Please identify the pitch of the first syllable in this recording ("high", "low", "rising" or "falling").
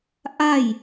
falling